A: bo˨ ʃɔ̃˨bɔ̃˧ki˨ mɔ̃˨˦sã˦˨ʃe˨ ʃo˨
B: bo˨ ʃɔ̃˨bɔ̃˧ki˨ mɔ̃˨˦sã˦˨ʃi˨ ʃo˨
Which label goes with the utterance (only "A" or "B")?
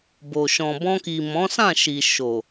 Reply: B